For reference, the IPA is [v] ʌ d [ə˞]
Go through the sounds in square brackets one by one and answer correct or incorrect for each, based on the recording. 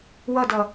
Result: incorrect: w, incorrect: ʌ

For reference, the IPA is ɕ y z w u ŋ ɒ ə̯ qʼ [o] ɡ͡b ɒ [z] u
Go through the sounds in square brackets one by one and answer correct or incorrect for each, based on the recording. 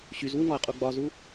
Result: incorrect: u, correct

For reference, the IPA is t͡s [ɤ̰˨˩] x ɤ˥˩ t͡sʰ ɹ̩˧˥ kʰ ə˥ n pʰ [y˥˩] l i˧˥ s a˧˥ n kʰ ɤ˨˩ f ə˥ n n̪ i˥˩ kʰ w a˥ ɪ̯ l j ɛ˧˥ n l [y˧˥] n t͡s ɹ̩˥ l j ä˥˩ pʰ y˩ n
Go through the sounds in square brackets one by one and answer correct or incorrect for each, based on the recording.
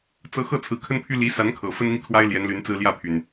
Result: incorrect: ɤ˧˥, incorrect: y˥, correct

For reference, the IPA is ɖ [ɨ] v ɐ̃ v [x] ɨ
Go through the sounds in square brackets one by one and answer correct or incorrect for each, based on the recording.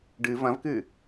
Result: correct, incorrect: k

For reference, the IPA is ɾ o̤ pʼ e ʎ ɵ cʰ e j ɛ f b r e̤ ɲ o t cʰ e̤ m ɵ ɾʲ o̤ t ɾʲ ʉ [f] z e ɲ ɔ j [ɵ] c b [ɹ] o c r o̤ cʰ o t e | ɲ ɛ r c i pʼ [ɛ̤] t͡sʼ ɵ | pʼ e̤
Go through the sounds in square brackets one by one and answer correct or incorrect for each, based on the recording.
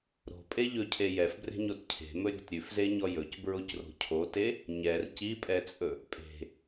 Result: correct, correct, correct, incorrect: ɛ

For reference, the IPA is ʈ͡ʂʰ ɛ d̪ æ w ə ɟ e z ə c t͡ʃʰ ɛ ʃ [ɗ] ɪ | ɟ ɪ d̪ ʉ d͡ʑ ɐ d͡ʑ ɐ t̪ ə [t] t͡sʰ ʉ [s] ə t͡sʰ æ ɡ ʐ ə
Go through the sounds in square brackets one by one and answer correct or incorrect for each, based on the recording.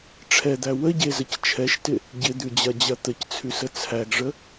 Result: incorrect: t, incorrect: c, correct

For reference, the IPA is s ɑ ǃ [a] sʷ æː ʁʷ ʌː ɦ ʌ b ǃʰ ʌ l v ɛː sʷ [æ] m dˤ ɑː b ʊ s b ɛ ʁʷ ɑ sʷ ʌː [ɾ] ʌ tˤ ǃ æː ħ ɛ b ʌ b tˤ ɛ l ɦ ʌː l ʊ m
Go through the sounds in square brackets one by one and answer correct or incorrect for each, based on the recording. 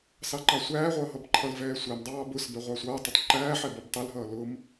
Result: incorrect: ɑ, correct, incorrect: tˤ

